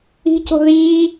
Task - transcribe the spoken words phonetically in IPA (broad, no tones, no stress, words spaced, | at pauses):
i̤co̤ ðiː